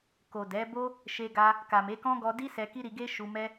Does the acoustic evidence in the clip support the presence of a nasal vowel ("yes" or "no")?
yes